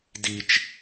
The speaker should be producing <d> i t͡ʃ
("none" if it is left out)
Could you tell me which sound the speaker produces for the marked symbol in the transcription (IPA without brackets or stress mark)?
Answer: d